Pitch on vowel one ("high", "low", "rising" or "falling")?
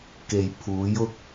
low